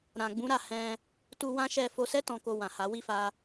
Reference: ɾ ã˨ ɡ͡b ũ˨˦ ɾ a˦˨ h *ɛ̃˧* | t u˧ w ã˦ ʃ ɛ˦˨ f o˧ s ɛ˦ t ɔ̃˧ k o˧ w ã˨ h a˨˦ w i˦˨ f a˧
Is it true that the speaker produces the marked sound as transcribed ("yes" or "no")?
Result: yes